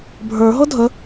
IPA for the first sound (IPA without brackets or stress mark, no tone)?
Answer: bʱ